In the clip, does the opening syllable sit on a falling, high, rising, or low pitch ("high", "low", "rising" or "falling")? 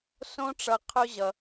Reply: high